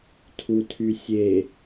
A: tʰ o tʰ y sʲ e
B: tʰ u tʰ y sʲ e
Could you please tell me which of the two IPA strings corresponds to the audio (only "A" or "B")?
B